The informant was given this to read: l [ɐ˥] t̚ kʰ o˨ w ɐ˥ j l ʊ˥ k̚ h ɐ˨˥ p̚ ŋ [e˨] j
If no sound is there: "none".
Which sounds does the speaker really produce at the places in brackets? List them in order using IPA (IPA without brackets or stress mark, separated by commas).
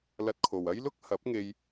ɐ˧, e˧